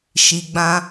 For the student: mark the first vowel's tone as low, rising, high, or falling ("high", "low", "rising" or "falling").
low